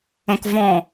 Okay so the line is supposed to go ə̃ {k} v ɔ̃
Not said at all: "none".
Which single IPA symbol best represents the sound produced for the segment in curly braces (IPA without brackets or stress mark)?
k